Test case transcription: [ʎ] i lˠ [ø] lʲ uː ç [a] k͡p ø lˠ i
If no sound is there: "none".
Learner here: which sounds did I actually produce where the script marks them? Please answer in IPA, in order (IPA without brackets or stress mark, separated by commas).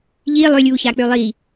ʎ, ø, a